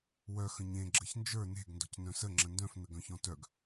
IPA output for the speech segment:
w œ x ə̃ ɲ ẽ ɡ͡ǁ ə ç n d͡ʒ ə˞ n e̤ ɡ n d ɔ̤ c n œ̃ s ə ŋ͡ǁ ə̃ n d œ̃ f n ə ɡ œ̃ ç ɔ̃ t œ ɡ

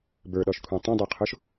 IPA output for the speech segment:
b ə˞ ɗ ɔ ʃ kʷʰ ĩ tˤ ẽ dˤ o qʰ o ʃ

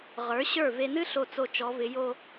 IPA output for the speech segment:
ʁ ə˞˩˧ ɕ ə˞˧˩ v e˧ n ɨ˥ ɬ o˧˩ t͡s o˧˩ t͡ʃ ɔ˩˧ v ɪ˩˧ j o˥˧

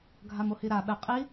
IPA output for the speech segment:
ɡʱ a m o h i ɾ a ɓ ɛ qʼ i

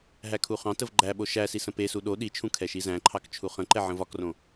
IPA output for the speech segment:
ɦ æ kʰ u χ ɑ̃ t ə v ɡ͡ǃ æ ɓ o ʃ æ s i s ə̃ p e s u ɗ o ɗ i t͡ʃʰ ũ kʰ ɛ ʃ i z æ̃ ǃʰ ɑ k t͡ʃʰ u χ ə̃ ǃ ɛ ʕ ə̃ v ɒ k r õ

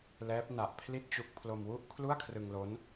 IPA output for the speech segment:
l ɛː˦˥ p̚ n a˨˩ ʔ pʰ l i˥˩ t̚ t͡ɕ u˦˥ k̚ pʰ l o˧ m w u˥˩ ʔ kʰ l u˥˩ a̯ kʰ r ɯ˧ ŋ l o˦˥ n

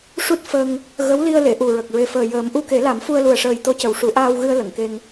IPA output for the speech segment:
ʂ u˦˥ t̚ f ə˧ ŋ | ɣ ə˧˥ w l i˧ ə̯ l e˨˩˨ ʔ u˨˩ ɹ ə˨˩ k̚ ɹ e˨˩ f əː˨˩ j əː˨˩˦ m ʔ u˧ k e˨˩˦ l a˨˩˦ m f u˧ ə̯ l u˨˩ ə̯ ʂ əː˨˩ j t̪ o˧ c ə˨˩ w ʂ u˨˩˦ ʔ aː˧ w ɣ ɨ˧ ə̯ l ə˨˩˨ ŋ k e˧ ŋ

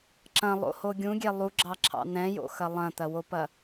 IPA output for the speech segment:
ǁ ɐ̃ lˠ o̰ h o ɡʲ ũ ɡʲ ɛ lˠ u ɡ͡ǁ ɑ ǁʰ ɑ̰ n̪ ɛ̃ j o̰ x ɐ lˠ ɐ̃ t̪ ɐ w o p ɐ

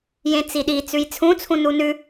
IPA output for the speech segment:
j ẽ t͡s i ɗ i t͡s ʉ j t͡sʰ ũ t͡sʰ ũ n u n ʉ

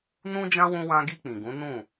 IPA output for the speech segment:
n ũ˦ d͡ʒ ã˦ w ũ˧ w ã˧ ɡ i˧ k͡p ĩ˨ ɡ ũ˨˦ n ũ˦˨

